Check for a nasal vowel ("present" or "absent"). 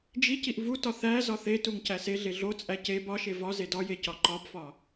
absent